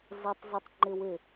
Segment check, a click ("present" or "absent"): present